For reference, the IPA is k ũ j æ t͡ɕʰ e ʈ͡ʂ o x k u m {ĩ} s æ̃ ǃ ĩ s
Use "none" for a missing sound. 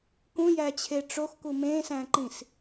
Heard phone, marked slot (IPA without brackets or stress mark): ẽ